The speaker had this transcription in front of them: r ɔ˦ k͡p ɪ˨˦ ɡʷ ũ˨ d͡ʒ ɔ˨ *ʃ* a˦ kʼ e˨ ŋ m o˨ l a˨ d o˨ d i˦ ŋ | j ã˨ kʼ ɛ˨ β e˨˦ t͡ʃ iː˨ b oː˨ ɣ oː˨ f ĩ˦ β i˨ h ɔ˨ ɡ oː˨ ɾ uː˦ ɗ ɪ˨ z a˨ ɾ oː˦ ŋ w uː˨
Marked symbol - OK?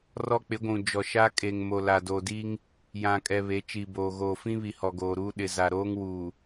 yes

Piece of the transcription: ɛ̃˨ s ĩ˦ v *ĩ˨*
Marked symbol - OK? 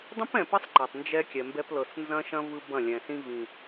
yes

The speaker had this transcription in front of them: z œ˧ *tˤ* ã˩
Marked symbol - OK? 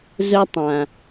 yes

